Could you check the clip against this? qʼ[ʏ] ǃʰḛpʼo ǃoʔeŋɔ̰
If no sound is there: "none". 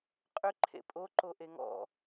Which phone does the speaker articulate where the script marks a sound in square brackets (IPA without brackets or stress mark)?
ʏ